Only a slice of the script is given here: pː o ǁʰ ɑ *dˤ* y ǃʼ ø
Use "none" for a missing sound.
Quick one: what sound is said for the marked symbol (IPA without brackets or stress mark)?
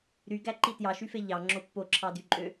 d